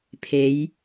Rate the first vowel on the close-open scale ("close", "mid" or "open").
mid